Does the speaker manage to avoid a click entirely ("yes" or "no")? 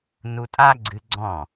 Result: no